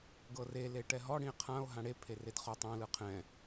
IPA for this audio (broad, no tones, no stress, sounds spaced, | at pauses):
ɡ ɤ r e l e ʈ ɛ ɦ ɔ ɽ ĩ e̯ qʰ ã o̯ ɦ ã ɽ e pʰ e r e d χ ɔ tˤ ã l ɯ qʰ ɛ̃